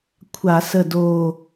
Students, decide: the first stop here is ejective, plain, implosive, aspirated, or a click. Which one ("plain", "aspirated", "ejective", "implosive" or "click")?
aspirated